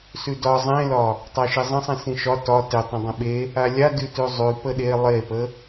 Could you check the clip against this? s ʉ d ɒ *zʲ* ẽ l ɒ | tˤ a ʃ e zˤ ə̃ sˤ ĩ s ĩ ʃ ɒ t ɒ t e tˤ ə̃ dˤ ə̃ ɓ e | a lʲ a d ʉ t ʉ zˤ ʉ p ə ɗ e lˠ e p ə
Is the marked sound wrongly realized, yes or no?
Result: yes